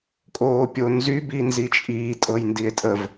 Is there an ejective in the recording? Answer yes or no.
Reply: yes